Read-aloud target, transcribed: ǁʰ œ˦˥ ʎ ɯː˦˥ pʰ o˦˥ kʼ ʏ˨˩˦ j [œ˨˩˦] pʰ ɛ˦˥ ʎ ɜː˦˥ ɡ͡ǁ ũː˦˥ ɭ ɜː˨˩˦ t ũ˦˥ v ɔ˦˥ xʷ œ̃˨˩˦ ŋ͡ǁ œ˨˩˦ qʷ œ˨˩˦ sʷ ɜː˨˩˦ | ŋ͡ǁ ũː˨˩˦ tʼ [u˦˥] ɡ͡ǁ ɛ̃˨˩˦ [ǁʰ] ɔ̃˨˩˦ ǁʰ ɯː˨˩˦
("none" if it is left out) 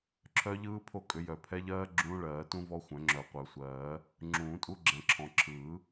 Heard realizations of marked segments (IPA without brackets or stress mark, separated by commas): œ˨˩˦, u˦˥, ǁʰ